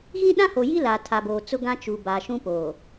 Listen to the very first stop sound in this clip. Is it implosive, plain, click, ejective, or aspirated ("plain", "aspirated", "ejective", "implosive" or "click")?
implosive